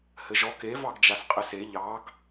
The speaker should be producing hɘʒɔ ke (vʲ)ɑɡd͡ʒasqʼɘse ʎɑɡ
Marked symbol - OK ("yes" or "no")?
no